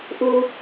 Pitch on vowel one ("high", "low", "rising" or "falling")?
low